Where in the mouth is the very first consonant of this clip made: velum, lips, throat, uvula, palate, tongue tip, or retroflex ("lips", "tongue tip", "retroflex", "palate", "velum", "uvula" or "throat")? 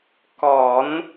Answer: velum